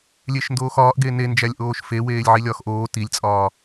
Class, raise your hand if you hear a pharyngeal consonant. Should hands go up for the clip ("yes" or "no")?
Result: yes